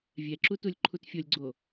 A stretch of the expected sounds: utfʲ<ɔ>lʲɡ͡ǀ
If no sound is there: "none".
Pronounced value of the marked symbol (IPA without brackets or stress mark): o